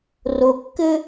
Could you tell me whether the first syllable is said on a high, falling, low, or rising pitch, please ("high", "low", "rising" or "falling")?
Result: low